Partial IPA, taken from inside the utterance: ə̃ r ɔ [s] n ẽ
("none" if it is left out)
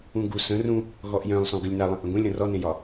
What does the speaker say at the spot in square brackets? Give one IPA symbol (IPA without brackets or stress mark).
none